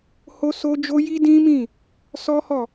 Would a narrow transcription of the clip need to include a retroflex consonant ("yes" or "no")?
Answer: no